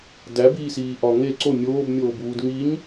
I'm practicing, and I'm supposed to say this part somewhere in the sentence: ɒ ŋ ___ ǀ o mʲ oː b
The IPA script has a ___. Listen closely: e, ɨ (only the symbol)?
e